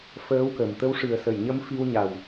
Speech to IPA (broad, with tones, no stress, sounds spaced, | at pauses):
f əː˧˥ w k ə˨˩ m t̪ ə˧˥ w ʂ ɨ˨˩ ə̯ s ə˨˩˨ j ɲ ə˧˥ m f i˧ w ɲ a˨˩ w